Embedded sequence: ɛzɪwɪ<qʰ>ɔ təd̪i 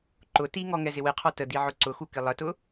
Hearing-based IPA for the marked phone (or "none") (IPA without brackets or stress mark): qʰ